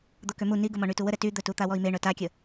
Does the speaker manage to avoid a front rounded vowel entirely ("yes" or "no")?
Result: no